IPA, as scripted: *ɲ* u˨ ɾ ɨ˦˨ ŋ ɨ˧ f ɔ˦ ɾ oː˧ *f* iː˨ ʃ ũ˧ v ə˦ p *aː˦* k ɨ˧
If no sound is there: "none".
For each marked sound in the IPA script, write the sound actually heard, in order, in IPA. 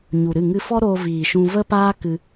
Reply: ɲ, v, aː˦

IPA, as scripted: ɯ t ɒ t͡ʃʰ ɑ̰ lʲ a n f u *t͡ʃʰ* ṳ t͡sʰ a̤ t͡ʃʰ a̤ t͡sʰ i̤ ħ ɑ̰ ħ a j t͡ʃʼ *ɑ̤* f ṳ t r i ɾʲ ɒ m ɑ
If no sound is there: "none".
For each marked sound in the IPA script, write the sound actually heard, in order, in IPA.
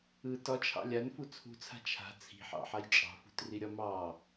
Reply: t͡sʰ, ɑ̤

